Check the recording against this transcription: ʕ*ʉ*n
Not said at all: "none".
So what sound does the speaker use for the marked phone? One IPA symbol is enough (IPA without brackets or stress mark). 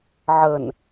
ə